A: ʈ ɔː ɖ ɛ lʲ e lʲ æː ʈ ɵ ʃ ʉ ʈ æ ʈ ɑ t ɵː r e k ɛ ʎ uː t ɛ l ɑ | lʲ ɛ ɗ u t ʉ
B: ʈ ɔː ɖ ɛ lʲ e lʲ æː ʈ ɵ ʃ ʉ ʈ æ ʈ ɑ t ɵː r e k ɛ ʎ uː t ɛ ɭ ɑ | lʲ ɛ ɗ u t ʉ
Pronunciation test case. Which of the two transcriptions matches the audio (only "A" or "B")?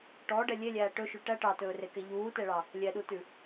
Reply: B